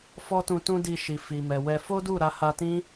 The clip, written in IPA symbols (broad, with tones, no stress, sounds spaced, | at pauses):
f ɔ˦ t ũ˧ t ũ˦ d i˧ ʃ i˨ f i˨ m ɛ˨ w ɛ˧ f o˦ d u˦˨ ɾ a˧ h a˧ t ĩ˦